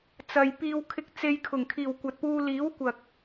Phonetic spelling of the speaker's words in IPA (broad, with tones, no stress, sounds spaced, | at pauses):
t͡s ɐ˨ j p iː˧ w kʰ ɪ˧ k̚ t͡s e˧ j kʰ ʊ˨˩ ŋ kʰ iː˨˩ w kʷ ɐ˨ t̚ p uː˧ l iː˨˥ w kʷ ɐ˨ k̚